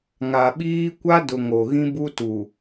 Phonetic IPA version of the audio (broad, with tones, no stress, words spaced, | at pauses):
ŋa˨ɓiː˦ kʷa˦dʊ˨ ŋo˨ɣĩ˦ bu˦tu˨